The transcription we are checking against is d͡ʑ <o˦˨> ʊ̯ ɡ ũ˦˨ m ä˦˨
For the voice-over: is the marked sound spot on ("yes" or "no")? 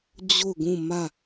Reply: yes